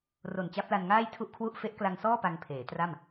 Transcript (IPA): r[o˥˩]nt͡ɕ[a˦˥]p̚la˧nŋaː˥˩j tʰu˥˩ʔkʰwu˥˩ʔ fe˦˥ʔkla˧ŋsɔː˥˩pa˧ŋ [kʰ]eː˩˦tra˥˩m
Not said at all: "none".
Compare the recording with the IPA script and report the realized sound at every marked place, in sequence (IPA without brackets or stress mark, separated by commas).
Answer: o˨˩, a˦˥, pʰ